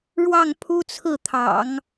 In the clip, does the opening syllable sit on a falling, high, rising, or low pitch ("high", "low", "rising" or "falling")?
falling